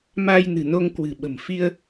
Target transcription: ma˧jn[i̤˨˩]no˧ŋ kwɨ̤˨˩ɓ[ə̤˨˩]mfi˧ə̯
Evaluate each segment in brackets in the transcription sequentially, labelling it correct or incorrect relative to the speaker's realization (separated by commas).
incorrect, correct